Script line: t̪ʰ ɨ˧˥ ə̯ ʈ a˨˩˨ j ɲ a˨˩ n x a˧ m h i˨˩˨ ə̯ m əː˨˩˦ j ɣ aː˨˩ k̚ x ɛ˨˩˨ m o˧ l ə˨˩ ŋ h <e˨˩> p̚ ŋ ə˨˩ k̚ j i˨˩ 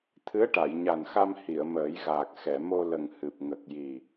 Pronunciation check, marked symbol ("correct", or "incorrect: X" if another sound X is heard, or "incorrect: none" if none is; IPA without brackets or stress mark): incorrect: ɨ˨˩